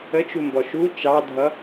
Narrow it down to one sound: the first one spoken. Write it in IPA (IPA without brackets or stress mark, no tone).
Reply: ə